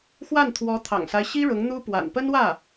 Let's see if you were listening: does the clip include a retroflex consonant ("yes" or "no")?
yes